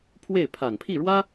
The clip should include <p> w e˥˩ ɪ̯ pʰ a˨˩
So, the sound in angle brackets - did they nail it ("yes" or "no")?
no